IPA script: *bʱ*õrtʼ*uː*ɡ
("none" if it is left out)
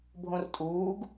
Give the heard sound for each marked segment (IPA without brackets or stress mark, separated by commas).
bʱ, uː